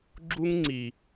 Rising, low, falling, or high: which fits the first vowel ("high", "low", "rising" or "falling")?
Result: high